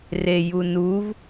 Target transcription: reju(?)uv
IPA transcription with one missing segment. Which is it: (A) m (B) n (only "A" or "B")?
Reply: B